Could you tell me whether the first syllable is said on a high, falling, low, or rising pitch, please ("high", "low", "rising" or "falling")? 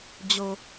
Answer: low